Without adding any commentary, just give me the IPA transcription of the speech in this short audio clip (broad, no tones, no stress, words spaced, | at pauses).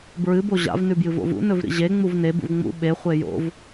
bɹɨ boʑa̰v nʉbjɨvo̰vṵ nɵvɾḭʑe ŋ͡muvne bṵvŋ͡mṵ ɓe χʷejo̰v